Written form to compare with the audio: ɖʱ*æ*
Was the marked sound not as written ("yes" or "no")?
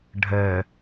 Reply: yes